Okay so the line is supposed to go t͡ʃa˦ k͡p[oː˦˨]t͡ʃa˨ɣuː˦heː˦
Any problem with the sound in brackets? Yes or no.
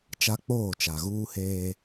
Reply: no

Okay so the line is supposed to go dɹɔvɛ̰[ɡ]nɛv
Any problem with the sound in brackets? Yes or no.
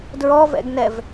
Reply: no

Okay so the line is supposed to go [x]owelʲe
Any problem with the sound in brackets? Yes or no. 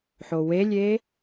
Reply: yes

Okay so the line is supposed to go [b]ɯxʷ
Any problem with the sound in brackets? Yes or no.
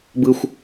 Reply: no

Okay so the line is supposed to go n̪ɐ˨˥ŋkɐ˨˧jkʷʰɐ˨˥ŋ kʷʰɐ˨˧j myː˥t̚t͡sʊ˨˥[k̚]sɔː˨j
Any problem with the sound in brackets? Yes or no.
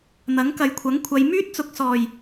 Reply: no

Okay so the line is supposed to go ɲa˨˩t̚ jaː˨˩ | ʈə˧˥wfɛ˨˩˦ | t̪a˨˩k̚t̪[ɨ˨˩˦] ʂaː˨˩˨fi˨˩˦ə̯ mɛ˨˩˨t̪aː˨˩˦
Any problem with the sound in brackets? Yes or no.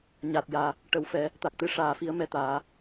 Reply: yes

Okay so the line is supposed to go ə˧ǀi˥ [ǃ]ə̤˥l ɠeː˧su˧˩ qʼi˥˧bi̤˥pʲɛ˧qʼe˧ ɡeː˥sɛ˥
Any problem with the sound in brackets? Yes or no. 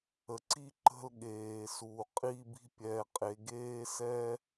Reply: no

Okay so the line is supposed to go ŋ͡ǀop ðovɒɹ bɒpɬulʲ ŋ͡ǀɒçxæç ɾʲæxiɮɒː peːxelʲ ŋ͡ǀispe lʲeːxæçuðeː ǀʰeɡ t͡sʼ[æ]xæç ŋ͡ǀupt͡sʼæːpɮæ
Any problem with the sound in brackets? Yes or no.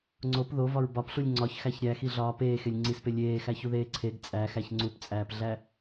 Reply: no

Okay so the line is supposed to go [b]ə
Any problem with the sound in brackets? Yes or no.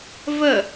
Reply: yes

